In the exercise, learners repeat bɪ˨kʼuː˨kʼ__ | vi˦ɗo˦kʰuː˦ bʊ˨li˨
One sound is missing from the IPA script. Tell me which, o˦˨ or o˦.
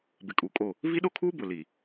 o˦˨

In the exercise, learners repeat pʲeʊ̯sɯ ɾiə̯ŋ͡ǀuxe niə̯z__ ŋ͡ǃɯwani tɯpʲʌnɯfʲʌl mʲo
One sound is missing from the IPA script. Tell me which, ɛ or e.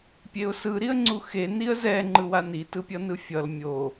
ɛ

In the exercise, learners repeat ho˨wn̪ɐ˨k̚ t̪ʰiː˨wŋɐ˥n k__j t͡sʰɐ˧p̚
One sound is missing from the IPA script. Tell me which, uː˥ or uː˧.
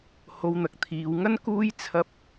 uː˥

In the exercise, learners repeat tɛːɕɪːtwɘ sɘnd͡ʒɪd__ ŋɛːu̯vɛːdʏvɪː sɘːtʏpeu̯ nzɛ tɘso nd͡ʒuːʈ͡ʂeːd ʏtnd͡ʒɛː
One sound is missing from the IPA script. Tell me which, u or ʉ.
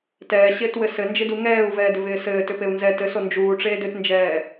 u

